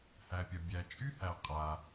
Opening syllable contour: low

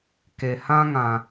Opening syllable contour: low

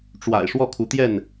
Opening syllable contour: low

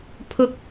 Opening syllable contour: high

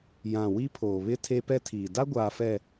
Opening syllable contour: low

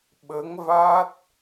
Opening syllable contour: rising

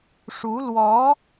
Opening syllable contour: rising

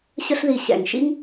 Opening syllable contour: high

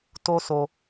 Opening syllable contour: high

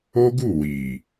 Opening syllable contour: high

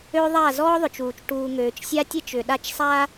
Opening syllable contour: high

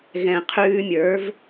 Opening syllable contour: low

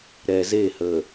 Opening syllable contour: low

